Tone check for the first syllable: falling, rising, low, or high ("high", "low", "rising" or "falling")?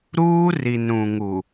high